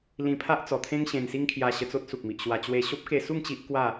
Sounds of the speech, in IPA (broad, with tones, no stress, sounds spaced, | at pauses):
l ĩ˧ pʰ a˦ ʔ t͡s ɔ˨˩ t̪ʰ ẽ˦ ŋ ɕ ẽ˧ n s i˦ ŋ kʰ j a˧ ɕ ə˧ t͡s o˦ t̚ s u˨ k̚ m i˨ ʔ ɕ w a˧ t͡ɕ w e˧ ɕ o˦ p̚ k e˧ s u˥˧ ŋ t͡ɕ i˦ ʔ k w a˥˧